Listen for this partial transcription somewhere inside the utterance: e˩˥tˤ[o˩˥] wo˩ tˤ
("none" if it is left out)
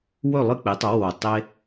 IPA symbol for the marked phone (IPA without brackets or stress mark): o˩˥